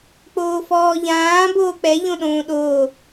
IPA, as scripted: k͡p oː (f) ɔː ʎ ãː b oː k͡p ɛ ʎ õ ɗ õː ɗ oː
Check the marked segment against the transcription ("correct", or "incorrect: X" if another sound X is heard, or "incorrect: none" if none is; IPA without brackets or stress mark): correct